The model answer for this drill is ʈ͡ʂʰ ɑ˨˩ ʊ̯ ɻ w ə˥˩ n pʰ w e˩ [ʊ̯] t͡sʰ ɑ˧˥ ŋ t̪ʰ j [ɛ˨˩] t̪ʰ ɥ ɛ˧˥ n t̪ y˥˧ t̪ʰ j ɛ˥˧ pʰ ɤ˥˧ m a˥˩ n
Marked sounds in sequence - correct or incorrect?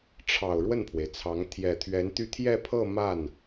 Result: incorrect: ɪ̯, correct

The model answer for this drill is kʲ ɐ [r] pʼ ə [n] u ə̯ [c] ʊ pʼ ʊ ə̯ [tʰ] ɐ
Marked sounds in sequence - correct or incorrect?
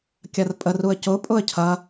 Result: correct, incorrect: r, correct, incorrect: cʰ

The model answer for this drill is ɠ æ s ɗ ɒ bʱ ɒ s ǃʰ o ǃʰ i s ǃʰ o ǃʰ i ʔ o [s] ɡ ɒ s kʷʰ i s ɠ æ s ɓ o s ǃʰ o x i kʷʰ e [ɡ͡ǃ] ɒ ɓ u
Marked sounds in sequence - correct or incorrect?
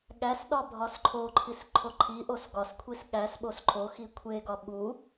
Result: correct, incorrect: ɡ

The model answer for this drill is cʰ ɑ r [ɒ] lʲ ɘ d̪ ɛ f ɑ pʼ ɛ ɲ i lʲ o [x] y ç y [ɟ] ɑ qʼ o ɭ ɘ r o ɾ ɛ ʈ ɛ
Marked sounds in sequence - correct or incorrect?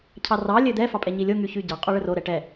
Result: incorrect: ɑ, incorrect: ŋ, correct

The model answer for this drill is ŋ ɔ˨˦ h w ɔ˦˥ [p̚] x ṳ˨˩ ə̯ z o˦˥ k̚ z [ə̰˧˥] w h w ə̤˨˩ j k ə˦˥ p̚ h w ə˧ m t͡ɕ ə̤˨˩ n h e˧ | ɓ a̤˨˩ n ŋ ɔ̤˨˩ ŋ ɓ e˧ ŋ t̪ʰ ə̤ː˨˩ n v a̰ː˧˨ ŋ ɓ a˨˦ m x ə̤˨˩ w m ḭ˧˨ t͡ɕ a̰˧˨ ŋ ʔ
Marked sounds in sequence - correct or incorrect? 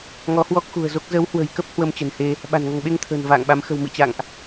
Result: incorrect: k̚, incorrect: ə˨˦

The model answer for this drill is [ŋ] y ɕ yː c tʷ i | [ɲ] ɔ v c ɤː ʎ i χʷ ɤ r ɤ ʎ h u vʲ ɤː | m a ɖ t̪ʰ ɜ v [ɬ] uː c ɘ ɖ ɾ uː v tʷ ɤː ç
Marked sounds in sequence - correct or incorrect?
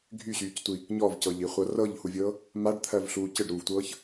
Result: incorrect: ɡʱ, correct, correct

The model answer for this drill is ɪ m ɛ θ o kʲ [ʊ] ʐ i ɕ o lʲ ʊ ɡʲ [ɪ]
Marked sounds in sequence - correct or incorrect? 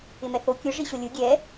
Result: correct, incorrect: ɛ

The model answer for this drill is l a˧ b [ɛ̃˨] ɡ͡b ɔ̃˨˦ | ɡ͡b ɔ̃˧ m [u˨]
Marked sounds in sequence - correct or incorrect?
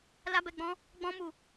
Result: incorrect: ɛ˨, correct

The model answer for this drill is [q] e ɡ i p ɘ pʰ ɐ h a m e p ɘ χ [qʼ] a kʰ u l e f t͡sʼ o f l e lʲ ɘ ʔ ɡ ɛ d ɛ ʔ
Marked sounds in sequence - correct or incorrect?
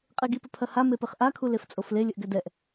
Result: incorrect: qʼ, incorrect: ʔ

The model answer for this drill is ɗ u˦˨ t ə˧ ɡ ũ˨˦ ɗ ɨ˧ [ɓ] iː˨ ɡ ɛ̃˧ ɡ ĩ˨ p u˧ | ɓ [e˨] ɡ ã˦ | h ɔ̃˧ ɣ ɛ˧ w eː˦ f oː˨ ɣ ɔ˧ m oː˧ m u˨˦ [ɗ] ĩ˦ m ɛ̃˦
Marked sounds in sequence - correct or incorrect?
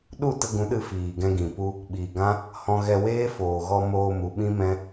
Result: incorrect: f, incorrect: i˨, incorrect: ɓ

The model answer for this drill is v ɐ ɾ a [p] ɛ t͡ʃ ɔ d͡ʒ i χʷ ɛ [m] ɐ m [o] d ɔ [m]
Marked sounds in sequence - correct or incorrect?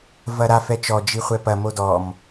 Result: incorrect: f, incorrect: p, correct, correct

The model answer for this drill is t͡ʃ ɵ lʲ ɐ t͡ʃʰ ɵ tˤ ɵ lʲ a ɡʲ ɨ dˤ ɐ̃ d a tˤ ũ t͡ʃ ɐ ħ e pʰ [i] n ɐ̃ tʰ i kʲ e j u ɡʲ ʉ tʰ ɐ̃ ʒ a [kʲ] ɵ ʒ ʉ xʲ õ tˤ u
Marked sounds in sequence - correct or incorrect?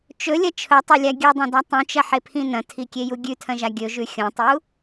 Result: incorrect: ĩ, incorrect: ɡʲ

